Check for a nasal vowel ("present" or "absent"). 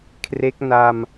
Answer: absent